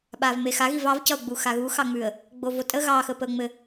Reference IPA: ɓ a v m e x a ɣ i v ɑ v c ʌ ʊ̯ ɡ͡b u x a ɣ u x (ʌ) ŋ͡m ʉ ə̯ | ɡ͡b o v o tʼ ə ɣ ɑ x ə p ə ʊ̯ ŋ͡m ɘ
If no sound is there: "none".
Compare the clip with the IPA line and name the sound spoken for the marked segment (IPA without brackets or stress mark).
ɑ